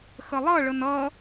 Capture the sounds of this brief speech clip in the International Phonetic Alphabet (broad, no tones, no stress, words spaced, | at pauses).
xəlˠʌɭən ʌ